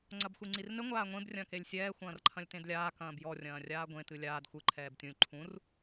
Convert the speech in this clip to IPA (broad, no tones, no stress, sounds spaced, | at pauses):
ŋ͡ǀ ɐ b xʷ i ŋ͡ǀ i r n ɘ ŋʷ aː ŋʷ ẽ b rʲ ɐ̃ː k e lʲ sʲ ɛː xʷ ɐ̃ː r ǃʰ ɐ̃ lʲ t ẽ d lʲ aː k ɐ̃ː b j ɔ rʲ ɐ̃ː rʲ aː ɡʷ ẽ t ɨ lʲ aː d xʷ ɨ ǃʰ ɛː b tʲ ũ lʲ ǃʰ ũ r